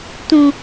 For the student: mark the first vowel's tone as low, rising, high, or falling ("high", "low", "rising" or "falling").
low